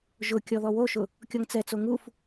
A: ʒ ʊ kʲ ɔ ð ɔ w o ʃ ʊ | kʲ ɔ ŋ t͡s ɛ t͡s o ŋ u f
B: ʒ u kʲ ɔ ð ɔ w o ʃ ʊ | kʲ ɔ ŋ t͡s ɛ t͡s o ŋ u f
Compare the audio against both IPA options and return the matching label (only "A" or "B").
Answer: A